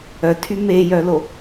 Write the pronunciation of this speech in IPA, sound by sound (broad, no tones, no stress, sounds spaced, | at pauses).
œ tʰ y m e j œ l o